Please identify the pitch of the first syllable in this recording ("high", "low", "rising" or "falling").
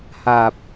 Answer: low